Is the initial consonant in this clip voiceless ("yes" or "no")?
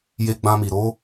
no